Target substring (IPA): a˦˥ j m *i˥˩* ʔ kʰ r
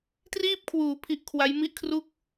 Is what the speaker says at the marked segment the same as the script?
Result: yes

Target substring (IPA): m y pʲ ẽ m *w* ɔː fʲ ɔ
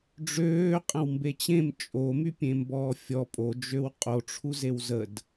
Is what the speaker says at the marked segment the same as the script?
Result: no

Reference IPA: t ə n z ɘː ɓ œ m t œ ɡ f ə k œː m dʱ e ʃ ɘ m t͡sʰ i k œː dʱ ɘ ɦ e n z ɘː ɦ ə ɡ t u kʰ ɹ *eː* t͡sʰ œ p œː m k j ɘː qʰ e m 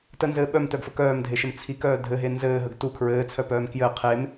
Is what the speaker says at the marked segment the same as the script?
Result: no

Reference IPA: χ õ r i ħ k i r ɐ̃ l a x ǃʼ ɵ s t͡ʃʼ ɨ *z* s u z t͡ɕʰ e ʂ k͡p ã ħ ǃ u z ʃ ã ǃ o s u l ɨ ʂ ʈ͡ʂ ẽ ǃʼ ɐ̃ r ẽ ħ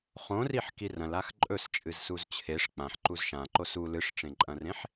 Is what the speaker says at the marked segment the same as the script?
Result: yes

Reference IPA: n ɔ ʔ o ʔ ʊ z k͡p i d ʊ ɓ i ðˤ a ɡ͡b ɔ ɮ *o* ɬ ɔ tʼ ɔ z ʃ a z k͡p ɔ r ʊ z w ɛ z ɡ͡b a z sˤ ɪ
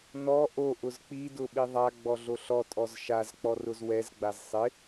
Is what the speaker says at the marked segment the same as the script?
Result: yes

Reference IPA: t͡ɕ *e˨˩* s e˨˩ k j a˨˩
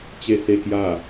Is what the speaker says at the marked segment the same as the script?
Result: yes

